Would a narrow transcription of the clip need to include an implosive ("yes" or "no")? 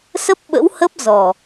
yes